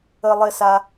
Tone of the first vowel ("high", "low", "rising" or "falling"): low